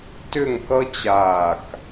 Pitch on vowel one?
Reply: falling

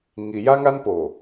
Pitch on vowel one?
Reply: low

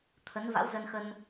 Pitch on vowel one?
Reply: rising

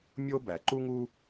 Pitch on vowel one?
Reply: high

